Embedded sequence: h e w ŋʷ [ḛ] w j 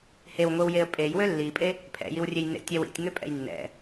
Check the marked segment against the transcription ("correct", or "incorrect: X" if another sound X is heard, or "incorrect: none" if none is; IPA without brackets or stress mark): incorrect: e